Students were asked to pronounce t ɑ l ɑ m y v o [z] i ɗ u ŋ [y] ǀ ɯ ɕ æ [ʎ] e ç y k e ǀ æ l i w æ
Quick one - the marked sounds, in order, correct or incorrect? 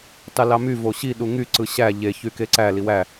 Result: incorrect: ɕ, correct, correct

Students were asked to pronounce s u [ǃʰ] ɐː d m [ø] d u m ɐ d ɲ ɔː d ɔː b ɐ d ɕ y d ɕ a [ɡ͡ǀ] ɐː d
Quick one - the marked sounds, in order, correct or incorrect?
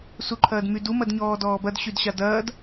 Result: correct, incorrect: y, incorrect: d

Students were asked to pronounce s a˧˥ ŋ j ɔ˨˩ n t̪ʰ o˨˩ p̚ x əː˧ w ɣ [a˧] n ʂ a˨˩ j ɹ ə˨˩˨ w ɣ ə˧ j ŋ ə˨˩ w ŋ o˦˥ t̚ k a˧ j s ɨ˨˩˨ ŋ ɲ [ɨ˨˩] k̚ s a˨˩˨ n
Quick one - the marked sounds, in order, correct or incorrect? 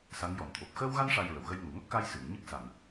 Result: correct, incorrect: ɨ˦˥

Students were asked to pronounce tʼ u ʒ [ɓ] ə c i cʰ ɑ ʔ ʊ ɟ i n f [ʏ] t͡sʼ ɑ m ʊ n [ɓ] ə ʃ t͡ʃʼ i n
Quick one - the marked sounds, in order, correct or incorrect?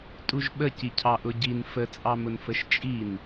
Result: correct, incorrect: ə, incorrect: f

